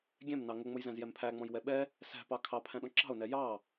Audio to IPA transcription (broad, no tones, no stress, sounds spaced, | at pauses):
ɡʲ ɛ̃ m n ɑ ŋ ʊ ŋ͡m ʊ j z ɛ̃ z j ɛ m pʰ æ ŋ͡m ɔ̃ j w ɛ ɓ ɛ | s æ̤ p ɑ kʰ ɑ pʰ æ̃ ɗ ɔ̃ ǁ ɑ̤ ʊ̯ n ɛ j ɑ